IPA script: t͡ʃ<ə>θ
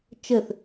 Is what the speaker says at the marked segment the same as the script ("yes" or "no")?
yes